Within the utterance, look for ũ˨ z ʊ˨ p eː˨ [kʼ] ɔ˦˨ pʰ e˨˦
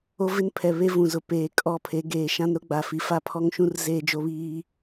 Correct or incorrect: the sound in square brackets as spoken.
correct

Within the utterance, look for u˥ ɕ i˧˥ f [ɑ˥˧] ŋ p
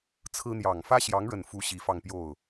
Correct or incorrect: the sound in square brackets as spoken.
correct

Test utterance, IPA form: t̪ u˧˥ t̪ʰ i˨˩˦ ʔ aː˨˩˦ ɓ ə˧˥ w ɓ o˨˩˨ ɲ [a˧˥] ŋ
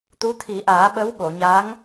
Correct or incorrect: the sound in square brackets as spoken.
correct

